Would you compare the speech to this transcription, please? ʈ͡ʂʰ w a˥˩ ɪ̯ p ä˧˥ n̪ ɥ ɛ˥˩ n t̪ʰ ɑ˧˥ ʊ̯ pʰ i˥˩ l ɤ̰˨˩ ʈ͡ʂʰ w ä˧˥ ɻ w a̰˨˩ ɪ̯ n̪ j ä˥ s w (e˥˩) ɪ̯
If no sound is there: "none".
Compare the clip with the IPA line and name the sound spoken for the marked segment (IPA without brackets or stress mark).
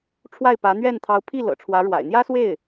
e˥˩